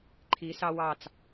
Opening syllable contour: rising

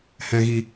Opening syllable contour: low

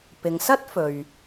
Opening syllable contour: low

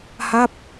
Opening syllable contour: falling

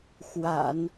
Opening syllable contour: low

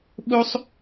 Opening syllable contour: high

